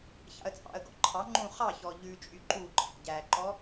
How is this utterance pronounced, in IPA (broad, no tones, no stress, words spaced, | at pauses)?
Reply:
çɑ̰ə̯t͡sʼɑ̰ə̯ɡɔ̰ ǃʰɑ ŋ͡ǃũ χɑçɔ ʎʉt͡ʃʼy ǃuǃʰæ̰ ɟæǃɔ